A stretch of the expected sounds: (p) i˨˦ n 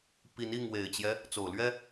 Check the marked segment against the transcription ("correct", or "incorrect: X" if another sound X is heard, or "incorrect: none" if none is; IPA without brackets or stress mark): correct